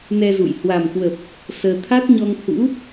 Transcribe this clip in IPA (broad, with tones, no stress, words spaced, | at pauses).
nɛ˧zṵ˧˨j hwa˨˩mkwə˨˩p̚ | səː˧ t̪ʰa˦˥t̚ɲɔ˧ŋ hṵ˧˥